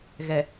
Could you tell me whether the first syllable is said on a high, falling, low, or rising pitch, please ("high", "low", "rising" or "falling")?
low